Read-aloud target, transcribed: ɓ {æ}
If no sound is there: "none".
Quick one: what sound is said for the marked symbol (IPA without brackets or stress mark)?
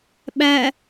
æ